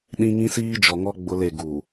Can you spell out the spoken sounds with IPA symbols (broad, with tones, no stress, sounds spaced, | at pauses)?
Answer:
ɗ ĩ˦ ŋ ĩ˦ s iː˦ d͡ʒ ɔ˨ ŋ ɔ˦ ɡ͡b ʊ˦ l e˦˨ ɡ u˨